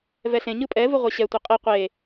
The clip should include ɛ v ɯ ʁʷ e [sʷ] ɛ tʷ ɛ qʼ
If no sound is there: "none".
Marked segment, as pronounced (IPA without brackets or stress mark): ɕ